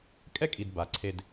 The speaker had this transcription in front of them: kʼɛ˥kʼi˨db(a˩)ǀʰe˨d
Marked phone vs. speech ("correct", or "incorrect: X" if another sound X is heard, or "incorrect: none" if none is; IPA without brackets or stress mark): correct